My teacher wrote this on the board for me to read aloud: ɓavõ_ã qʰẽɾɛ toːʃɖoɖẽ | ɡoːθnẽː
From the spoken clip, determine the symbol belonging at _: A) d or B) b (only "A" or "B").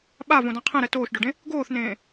A